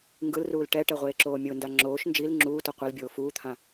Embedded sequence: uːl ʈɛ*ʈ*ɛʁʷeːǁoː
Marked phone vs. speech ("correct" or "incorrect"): correct